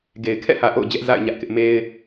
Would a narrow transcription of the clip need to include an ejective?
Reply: no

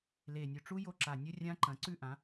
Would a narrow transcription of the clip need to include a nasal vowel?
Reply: yes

